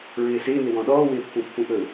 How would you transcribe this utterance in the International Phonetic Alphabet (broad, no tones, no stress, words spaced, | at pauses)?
ɹɪːsɪːnɪ wɔ̃ɗɔːwɪːpːũ pːũʔɵ